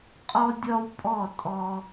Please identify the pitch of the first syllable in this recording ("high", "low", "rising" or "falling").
high